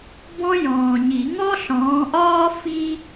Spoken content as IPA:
b ɔ̃˥ j ɔ̃ː˨ ɲ i˨˩˦ ŋ ɔ˥ ɬ ɔ̃ː˨˦ ʔ ɒː˥ f i˥

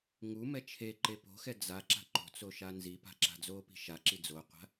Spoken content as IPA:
ŋ u m ɛ t͡ʃʰ e ǃ e p o̤ x ɛ d͡z a ǁ a̤ ǃ o̤ t͡s o ʃ a n z i p a̤ ǁ a̤ d͡z o p i̤ ʃ a ǁ i d͡z o qʷ a̤

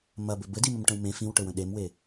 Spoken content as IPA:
m ɐ b ɘ b ɘ d i m ə m ʈ ə̃ w m ẽ f ĩ w ʈ ɘ w ə̃ ɗ e m w e

